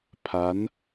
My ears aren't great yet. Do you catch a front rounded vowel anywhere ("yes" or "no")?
no